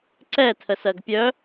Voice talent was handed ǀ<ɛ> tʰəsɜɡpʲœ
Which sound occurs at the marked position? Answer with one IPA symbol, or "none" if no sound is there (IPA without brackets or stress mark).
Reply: ɛ